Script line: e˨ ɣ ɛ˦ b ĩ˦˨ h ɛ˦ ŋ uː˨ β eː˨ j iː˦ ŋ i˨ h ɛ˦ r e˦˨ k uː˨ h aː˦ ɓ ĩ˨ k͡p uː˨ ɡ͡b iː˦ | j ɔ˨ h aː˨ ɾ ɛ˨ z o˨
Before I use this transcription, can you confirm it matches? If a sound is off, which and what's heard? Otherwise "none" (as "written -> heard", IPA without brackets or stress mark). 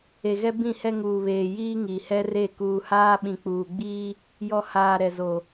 none